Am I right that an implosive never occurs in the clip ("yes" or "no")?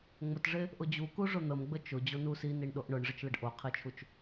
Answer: no